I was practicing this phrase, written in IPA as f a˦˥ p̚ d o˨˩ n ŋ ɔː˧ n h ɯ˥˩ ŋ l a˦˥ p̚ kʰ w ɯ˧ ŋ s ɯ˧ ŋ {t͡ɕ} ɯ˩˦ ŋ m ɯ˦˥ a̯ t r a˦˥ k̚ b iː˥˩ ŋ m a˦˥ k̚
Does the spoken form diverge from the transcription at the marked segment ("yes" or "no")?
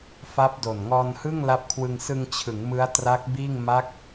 yes